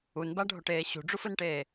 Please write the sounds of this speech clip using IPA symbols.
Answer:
u n b a ɖʱ o ʈ eː ɕ ṳ ɖ͡ʐ u f ɯ n ʈ eː

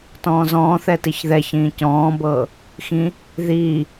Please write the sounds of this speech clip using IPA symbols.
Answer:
t ɔ̃ː z ɔ̃ː θ ɛ t i ç ð ɛ ç ĩː c ɔ̃ː b ɤː | x ĩ | ð iː

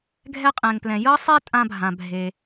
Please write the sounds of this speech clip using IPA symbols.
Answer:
ɡʱ ɛ˥ qʼ ɛ̃˩ ŋ p l ɛ̃˩ j ɤ˥ sˤ e˥ tʼ ã˥ bʱ ã˩ bʱ e˩

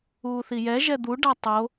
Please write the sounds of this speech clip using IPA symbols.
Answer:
uː θ i j ɛ ʒ ɛ d̪ u ɖ a tˤ o

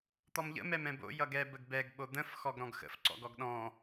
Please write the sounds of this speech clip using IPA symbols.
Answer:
t̪ ɔ m ʎ ə̰ m ɛ m ɛ̃ b o̰ j ʌ ɡ ɛ b ə ɡ b ɛ ɡ ɓ o d̪ ə̃ f x ɔ ɡ ɾ ɔ̃ ɡ x ə̰ f ǀ ɔ̰ ɡ ɔ ɡ ɗ ɔ̃

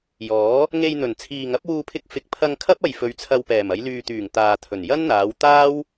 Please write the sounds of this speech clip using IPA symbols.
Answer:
j ɔː˨˥ | ŋ e˧ j n̪ ɵ˨˩ n t͡sʰ iː˨ ŋ ɐ˨˥ p̚ w uː˧ pʰ ɪ˧ k̚ f ɪ˨ k̚ pʰ ɐ˧ ŋ kʰ ɐ˥ p̚ ɐ˨ j f ɵ˨˧ ɥ t͡sʰ ɐ˧ w p ɛː˨˩ m ɐ˨˧ j l yː˨ t̪ yː˨˩ ŋ t̪ aː˨ t̪ʰ ɵ˨˩ n j ɐ˥ n n̪ aː˨˧ w t̪ aː˥ w

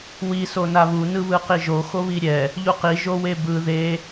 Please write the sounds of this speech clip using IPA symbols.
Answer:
w i s o n a β u n ɯ β ɯ q i ʒ o x o β i ɾʲ ɛ | ʎ u q i ʒ o w e b ɯ ð e

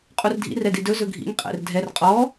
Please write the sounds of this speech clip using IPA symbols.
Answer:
qʼ u r dʱ ḭ r ɛ d i d ɵ z ɵ ɡʱ ḭ ŋ qʼ ɛ̰ r dʱ ɛ r qʼ ɔ

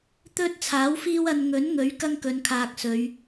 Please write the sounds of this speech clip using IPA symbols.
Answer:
t̪ ɵ˥ t̚ t͡sʰ aː˨˥ w f iː˥ w ɐ˧ n ŋ ɵ˨˥ n ŋ ɵ˨˥ ɥ k ɐ˥ ŋ k ɵ˨˧ n kʰ aː˨ k̚ s ɵ˨˧ ɥ

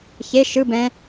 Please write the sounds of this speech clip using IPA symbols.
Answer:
ç e ʃ ɯ b ɛ̃

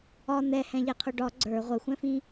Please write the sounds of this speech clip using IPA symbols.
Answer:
ɒ n̪ ɛ h ɛ̃ ʎ ɛ qʰ ʊ ɖ ɒ ɡ͡ǀ ə˞ ʁʷ ə xʷ ɛ̃ f ĩ

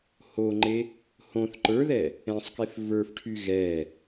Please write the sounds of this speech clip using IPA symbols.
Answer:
h o ŋ͡ǃ e | h õ θ ǃ ə˞ ð ɛ | ɛ̃ sˤ k e f v ə˞ f ʈʰ y ɣ ɛ

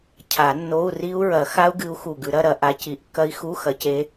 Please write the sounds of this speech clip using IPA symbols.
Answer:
cʰ a˨˩˦ nː o˧˥˧ u̯ r i˦˥ u̯ ɹ ɐ˨˩˦ x a˦˥ u̯ ɡ ɨ˨˦ u̯ x u˨˩ ɡ ʉ˨˩˦ ɾ ɐ˧˥˧ ɾ ɐ˨˦ ʔ a˨˦ c i˨˩˦ ʔ kː ɐ˦˥ i̯ x u˧˥˧ x ɐ˨˦ c e˨˦

